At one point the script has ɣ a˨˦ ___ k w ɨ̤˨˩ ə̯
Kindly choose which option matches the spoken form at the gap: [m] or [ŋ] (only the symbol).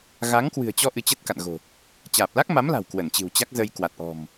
ŋ